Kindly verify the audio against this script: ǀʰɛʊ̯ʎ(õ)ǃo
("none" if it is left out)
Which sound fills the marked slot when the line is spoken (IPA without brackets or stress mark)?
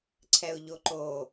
o